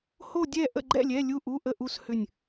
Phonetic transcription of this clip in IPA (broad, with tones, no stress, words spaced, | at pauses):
ho˥˧ dʲɛ˥˧ ʔə̰˥˧ɡ͡ǃɛ̰˥˧lʲɛ˧˥˧ lʲu˥˧ʔu˧˥˧ʔə˥˧ʔu˥˧s hʏ˥˧nʲ